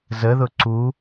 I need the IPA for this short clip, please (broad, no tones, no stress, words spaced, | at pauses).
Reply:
zəðʊ ǀu